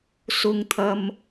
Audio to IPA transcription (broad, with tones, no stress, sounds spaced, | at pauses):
s ʊ˨ ŋ t̪ʰ ɐ˨ m